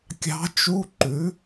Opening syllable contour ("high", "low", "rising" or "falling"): rising